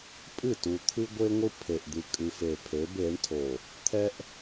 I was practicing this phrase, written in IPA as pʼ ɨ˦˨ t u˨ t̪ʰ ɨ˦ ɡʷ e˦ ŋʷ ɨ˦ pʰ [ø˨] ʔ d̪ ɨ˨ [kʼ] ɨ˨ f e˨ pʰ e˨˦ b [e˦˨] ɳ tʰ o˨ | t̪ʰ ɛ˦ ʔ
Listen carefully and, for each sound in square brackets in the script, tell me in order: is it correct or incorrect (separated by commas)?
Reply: incorrect, correct, incorrect